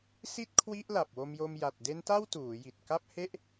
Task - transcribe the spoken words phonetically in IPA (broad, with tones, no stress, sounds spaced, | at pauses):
s i˥˩ t̚ kʰ w i˦˥ ʔ l a˨˩ p̚ w o˧ m j o˧ m j a˨˩ t̚ d e˦˥ n t a˥˩ w t uː˩˦ j i˨˩ t̚ k a˥˩ p̚ h e˥˩ ʔ